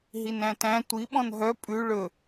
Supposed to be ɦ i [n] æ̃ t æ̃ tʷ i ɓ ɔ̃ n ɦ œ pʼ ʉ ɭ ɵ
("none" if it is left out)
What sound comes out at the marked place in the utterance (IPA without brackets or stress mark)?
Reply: n